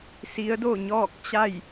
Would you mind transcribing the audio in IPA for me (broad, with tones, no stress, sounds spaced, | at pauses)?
s i˧˥ ə̯ d o˥˨ ɲ ɔː˥˨ k̚ t͡ɕ a˥˨ j